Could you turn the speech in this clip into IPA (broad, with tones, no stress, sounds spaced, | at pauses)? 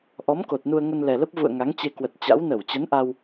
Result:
ʔ ɔ˨˦ m k o˨˩ t̚ n u˧ ə̯ ŋ ə˧ n l ɛ˨˩ l ə˦˥ p̚ v ṵ˧˨ ə̯ ŋ a˨˦ ŋ t͡ɕ e˧ k w ə˨˩ t̚ t͡ɕ a̰˧˥ w n ə˧˩ w t͡ɕ ə˨˦ n ʔ a˧ w